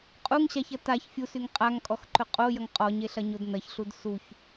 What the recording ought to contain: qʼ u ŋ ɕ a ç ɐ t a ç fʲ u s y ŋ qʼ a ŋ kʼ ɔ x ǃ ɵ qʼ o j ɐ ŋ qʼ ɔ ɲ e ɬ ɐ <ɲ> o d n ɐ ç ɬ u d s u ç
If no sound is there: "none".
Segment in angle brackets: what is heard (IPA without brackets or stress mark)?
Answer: ɲ